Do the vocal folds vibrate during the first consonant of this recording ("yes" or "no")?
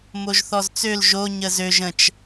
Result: yes